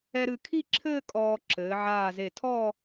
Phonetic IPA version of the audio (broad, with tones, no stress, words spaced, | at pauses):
ɛ˧ɾɨ˧˩kʰi˥˧ǁʰɘː˥˧ kʼɔː˧ ǁɘː˩˧ʕaː˧˩ze˧˩tʰɔ˥˧